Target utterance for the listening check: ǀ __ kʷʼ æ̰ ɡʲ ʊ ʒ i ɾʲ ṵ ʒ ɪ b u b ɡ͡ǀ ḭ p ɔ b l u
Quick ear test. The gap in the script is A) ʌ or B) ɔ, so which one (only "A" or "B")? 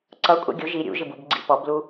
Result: A